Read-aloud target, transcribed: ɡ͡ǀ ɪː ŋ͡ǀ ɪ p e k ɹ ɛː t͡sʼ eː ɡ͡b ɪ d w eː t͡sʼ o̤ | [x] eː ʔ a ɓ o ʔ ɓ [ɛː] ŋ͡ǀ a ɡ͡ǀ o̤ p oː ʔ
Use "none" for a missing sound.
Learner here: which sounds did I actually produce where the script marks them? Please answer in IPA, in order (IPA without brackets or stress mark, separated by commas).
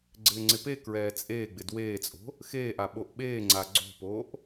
x, eː